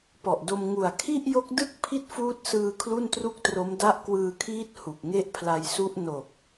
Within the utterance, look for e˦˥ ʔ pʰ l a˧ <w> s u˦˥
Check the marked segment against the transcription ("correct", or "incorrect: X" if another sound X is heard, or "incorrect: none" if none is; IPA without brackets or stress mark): incorrect: j